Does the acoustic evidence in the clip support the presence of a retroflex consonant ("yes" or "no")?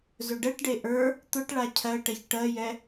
yes